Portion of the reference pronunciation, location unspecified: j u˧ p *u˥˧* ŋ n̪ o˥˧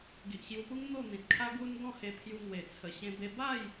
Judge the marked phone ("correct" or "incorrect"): incorrect